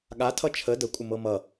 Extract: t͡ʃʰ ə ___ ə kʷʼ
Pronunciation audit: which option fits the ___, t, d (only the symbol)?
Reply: d